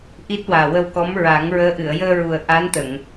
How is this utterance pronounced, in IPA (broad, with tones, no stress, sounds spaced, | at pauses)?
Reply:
ʔ i˦˥ t̚ w aː˨˩ w ə˧ w k ɔ˧˥ m ɹ a˨˩˦ ŋ ɹ əː˧˥ ʔ ɨ˨˩˨ ə̯ j əː˧ ɹ u˨˩ ə̯ ʔ a˧˥ n t̪ ə˨˩˨ ŋ